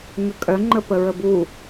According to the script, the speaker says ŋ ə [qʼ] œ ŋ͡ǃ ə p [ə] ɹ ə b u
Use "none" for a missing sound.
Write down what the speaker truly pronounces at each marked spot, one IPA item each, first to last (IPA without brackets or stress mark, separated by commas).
kʼ, ə